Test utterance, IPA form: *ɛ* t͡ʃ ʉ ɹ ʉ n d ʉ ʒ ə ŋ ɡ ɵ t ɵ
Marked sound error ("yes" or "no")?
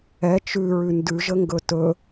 no